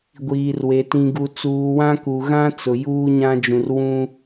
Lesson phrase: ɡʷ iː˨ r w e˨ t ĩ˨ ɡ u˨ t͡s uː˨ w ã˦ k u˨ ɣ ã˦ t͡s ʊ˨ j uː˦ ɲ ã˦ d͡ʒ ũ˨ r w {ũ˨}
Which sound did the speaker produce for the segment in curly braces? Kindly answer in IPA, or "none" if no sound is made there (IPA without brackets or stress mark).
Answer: ũ˦